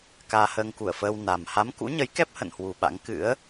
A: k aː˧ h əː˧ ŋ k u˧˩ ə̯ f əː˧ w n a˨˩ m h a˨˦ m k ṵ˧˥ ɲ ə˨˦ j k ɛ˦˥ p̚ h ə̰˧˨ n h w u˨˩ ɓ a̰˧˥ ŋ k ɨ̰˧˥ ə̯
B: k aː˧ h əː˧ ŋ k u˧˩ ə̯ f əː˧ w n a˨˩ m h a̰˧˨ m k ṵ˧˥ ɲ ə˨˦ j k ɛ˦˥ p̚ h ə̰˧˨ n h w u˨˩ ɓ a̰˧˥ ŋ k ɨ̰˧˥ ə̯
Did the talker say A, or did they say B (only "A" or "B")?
A